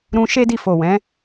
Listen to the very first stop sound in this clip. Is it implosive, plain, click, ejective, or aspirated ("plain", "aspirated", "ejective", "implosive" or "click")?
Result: plain